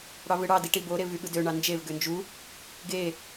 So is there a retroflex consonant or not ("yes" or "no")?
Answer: yes